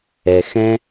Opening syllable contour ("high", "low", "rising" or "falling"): low